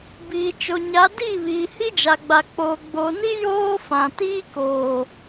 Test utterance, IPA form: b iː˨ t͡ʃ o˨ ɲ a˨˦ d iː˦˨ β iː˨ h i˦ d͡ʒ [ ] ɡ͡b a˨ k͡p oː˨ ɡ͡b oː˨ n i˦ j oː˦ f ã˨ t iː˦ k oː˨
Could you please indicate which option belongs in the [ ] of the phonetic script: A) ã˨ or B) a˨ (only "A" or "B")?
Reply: B